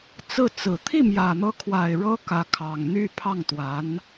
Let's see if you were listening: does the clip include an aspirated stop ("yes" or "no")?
yes